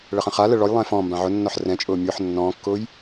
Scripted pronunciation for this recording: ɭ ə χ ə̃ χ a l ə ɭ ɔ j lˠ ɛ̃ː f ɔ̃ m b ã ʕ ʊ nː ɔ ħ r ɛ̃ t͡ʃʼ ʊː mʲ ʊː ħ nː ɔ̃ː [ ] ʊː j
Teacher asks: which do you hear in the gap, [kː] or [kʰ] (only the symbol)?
kː